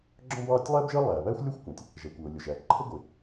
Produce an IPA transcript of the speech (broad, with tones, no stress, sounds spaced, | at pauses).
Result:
ɡ͡ǁ ɔ̃˥ b ɑː˥ tʲ lˠ æː˥ b ʒ əː˥ lˠ æː˩ β æː˥ xʷ lʲ əː˥ xʷ kʷ æ̃˩ tʲ | ʒ æ˩ kʷ ʊː˩ lʲ ʊ˩ ʒ æ˩ ǃʰ ə˥ ɡʷ ɪ˩